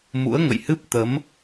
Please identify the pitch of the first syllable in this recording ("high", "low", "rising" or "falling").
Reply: rising